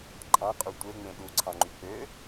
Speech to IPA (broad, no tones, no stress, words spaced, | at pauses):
ǃʼɑ̃qʼu tʷeŋ͡mẽ ɗuǀʰɑ̃ŋ͡ǃy k͡pø